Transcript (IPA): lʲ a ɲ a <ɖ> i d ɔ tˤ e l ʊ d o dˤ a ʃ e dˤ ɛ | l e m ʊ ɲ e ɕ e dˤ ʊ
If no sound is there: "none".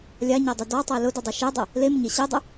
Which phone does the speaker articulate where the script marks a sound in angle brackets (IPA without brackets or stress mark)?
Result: dˤ